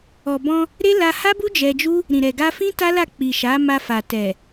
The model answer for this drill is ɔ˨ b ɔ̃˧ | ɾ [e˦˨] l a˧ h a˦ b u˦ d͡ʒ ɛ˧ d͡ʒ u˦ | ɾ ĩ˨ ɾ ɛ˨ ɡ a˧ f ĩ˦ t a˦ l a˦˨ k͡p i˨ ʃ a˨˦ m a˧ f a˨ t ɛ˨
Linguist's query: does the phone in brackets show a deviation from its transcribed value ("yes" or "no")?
yes